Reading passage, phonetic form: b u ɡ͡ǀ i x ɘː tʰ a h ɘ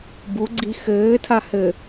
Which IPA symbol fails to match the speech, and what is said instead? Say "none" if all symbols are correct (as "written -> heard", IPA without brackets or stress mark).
none